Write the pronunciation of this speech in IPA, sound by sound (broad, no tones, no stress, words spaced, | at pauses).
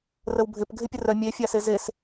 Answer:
rəwbʱɪp ɡʱɪpʲərœ mʲefʲase zes